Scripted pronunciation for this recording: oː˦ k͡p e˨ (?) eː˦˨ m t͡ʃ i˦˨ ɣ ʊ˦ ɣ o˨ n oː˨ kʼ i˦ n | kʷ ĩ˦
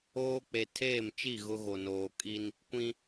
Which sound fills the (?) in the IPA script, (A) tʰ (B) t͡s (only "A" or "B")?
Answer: A